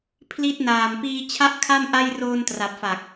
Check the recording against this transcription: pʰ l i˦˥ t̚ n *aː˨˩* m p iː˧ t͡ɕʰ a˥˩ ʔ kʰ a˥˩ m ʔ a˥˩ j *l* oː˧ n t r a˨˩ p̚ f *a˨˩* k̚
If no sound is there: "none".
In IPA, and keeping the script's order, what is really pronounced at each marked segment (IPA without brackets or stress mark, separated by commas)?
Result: aː˨˩, r, a˨˩